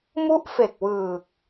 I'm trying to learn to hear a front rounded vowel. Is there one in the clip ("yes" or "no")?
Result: no